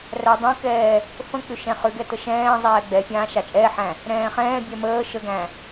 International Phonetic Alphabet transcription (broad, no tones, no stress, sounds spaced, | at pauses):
r æ dˤ æ̃ k ɛː | f ə̃ k͡p ʏ ʃ ɛ̃ χ ʏ ɡ ɛ t ə ʃ ɛ̃ː zˤ ɛː ɡ͡b ɛ fʲ ãː ʃ a t͡ʃʼ ɛː ħ æ̃ | ɾ ɛ̃ː χ ɛ̃ː bʲ ɛ m əː ʃ ə ɡ æ̃